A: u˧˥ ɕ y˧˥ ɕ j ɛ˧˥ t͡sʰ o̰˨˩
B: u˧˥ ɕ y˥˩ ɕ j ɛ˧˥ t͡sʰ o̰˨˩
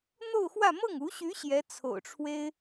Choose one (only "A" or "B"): A